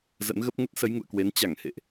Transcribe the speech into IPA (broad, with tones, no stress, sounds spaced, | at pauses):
z ə̰˧˥ n ɣ ə˦˥ p̚ ŋ ə˦˥ t̚ s ə˨˦ j ŋ ṵ˧˨ ə̯ k w e˨˦ n t͡ɕ a˧˩ ŋ h ḛ˧˨ ʔ